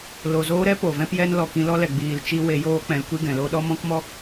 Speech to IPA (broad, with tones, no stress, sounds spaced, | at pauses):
l o˨ z oː˧ ɾ ɛ˦ p o˨ v ɛ̃˦ p j ɛ˦ n l ɔ˨ k ĩ˧ l ɔ˦ l ɛ˨ ɡ͡b iː˨ l t͡ʃ i˧ w e˧ j oː˦ k͡p ɛ̃˧ l kʷ i˦ ɡ ɛ̃˨ l o˦ ɗ ɔ˦ m ɔ̃˦ k m ɔ˦